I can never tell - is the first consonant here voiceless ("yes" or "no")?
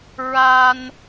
no